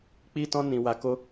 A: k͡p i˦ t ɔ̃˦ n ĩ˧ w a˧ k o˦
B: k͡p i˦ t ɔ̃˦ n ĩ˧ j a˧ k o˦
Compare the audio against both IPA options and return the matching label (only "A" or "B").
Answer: A